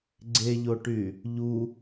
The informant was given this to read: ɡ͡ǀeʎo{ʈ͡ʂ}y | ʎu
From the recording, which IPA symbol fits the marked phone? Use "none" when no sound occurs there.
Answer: ʈ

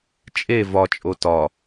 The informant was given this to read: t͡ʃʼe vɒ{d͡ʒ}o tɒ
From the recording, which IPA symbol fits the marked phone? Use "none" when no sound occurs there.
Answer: t͡ʃʼ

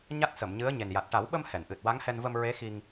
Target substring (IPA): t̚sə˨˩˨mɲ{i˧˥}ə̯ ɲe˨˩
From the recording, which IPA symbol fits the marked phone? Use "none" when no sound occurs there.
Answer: ɨ˧˥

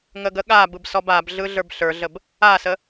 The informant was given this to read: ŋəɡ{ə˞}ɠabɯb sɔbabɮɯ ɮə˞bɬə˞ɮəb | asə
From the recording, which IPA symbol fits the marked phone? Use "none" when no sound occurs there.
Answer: ə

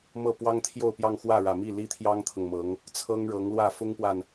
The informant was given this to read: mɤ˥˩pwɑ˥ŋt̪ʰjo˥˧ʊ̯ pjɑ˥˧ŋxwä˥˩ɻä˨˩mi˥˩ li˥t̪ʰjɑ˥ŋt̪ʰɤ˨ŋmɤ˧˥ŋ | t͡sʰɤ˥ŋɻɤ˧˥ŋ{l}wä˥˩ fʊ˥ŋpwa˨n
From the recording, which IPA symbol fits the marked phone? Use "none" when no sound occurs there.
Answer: l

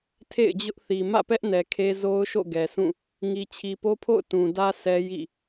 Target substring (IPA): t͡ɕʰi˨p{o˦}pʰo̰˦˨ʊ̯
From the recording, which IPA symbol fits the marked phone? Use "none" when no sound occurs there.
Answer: o˦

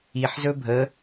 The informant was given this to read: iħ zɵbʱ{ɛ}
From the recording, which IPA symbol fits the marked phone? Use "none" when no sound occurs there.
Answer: ə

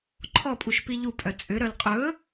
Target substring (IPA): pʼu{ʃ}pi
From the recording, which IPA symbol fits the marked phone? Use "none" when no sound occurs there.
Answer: ʃ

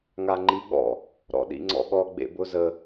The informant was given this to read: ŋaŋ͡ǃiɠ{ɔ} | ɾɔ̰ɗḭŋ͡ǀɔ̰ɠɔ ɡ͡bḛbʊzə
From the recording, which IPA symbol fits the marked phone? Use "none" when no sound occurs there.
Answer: ɔ̰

